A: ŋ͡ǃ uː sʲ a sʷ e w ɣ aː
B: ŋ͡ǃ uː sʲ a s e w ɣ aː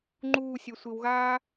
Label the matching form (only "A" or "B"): A